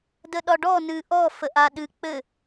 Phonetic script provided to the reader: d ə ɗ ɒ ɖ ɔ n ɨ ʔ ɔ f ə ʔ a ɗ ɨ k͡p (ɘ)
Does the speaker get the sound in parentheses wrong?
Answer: no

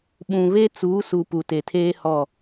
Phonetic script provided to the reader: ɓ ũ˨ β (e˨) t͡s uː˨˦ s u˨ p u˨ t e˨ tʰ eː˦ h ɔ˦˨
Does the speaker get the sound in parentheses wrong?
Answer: yes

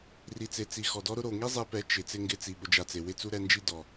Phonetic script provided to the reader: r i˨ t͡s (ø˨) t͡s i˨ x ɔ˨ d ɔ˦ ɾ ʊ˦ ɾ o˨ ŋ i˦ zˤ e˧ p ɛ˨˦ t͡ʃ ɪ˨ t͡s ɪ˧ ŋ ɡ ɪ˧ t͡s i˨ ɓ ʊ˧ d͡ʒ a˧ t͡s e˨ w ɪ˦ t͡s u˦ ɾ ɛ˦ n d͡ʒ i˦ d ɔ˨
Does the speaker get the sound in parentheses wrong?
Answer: yes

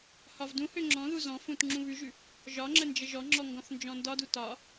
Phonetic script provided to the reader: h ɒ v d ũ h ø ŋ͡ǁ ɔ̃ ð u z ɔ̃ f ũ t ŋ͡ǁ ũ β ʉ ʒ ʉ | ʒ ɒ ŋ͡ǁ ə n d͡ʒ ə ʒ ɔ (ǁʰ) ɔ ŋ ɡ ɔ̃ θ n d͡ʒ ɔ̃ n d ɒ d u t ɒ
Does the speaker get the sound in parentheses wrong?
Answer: yes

